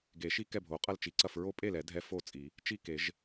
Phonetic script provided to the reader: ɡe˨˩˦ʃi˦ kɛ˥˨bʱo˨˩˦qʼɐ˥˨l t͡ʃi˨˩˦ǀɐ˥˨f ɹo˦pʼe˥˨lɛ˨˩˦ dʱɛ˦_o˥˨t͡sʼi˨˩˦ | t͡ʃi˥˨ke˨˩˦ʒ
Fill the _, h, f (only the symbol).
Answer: f